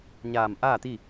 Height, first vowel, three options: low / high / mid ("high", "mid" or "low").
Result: low